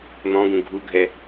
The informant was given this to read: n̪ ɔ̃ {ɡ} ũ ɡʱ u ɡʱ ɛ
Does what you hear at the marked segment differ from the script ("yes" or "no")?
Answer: no